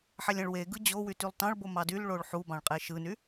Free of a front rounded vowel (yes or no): no